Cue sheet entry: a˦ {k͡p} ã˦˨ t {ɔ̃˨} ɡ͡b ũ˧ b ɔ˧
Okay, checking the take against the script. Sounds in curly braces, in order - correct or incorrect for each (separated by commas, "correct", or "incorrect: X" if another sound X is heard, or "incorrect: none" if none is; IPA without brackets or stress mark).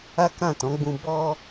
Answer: incorrect: k, incorrect: ɔ̃˨˦